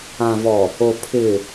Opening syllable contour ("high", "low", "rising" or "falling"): low